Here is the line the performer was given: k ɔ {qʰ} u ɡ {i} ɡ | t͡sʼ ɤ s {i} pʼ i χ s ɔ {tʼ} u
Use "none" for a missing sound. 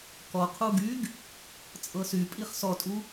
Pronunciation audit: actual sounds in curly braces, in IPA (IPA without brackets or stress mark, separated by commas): qʰ, y, y, tʼ